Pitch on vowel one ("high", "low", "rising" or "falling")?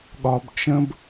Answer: low